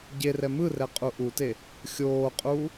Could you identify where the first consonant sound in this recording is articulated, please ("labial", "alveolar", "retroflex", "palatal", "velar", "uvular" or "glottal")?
palatal